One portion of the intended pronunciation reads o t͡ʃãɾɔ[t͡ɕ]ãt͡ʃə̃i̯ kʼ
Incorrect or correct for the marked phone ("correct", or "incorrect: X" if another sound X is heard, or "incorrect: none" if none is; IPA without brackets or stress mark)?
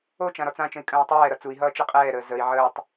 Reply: incorrect: t͡s